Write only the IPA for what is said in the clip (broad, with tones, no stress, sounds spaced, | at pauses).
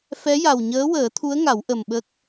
f ɛ˧˥ j a˨˩ w ɲ əː˧˥ w əː˨˩˦ t̪ʰ u˧˥ ə̯ ŋ a˨˩˦ w ʔ ə˨˩ m ɓ ə˦˥ k̚